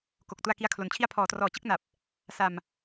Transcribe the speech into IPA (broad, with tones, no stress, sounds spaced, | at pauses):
k o˨˩ k̚ t u˧ a̯ k i˧ a̯ kʰ l o˨˩ n t͡ɕʰ i˧ a̯ pʰ ɔː˩˦ t r ɔː˨˩ t͡ɕ ɯ˥˩ k̚ n a˨˩ p̚ | s a˧ m